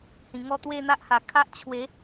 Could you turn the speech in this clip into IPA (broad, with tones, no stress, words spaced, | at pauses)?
hĩ˨˩ŋɔ˥˧ t̪we˥˧n̪a˦ʔha˨˩ kʰa˦ʔ t͡ɕʰwe˨˦